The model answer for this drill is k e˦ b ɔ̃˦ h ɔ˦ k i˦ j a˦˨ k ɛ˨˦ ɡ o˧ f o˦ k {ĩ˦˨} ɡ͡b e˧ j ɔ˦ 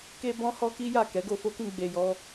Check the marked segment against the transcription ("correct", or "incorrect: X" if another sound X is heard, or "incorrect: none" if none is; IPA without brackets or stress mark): correct